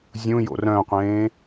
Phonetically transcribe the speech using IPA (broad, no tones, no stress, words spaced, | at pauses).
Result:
zʲũjo̰ rœ̃qʷẽː